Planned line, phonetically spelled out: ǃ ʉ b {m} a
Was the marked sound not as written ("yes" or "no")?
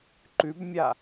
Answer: yes